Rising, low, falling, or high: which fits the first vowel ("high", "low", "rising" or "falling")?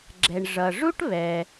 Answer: low